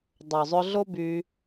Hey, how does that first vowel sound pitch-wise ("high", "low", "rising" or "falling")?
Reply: low